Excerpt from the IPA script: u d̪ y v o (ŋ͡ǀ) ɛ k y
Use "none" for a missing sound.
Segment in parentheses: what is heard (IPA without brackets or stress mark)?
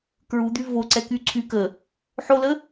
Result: ǀ